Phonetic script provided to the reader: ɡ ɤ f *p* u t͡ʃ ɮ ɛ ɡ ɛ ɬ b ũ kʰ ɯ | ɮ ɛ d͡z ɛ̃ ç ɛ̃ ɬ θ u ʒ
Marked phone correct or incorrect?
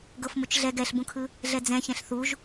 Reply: incorrect